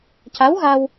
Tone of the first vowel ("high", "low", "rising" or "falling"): rising